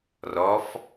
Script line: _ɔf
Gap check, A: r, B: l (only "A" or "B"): A